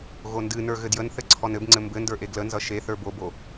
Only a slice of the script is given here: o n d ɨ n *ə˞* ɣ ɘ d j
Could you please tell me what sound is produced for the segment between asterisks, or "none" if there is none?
ə˞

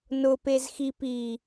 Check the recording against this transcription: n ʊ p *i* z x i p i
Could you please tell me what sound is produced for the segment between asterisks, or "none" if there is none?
e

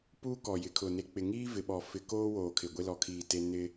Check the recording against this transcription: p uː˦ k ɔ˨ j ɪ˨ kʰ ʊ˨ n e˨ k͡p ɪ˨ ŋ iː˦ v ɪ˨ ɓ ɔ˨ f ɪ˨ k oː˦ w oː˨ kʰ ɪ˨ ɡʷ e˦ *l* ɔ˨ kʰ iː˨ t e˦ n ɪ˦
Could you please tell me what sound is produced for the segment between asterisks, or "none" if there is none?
l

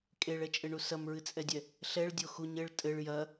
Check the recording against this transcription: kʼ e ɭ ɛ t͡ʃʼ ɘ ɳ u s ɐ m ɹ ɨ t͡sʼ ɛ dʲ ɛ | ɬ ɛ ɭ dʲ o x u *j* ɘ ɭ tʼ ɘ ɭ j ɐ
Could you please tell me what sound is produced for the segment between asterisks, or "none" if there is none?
ɲ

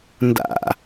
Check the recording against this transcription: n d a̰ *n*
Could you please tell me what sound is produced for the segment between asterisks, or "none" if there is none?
none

